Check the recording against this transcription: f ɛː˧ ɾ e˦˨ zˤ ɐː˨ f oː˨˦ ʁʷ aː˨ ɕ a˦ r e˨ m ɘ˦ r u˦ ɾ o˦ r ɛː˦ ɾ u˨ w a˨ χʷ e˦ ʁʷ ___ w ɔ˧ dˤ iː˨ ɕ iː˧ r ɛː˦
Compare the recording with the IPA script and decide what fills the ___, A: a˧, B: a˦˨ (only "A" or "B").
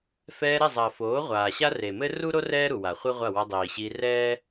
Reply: B